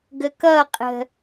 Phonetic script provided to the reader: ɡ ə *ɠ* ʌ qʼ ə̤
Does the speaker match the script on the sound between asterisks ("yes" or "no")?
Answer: no